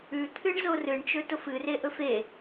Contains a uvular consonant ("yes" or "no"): no